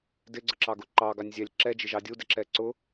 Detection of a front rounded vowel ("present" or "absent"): absent